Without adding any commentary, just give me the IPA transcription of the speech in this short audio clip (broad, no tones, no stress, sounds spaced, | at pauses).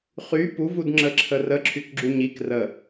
χ y p u v u d ŋ͡ǁ ə ǁʰ ə r ə ǁʰ y k ɡ͡ǁ u ɲ i k r ə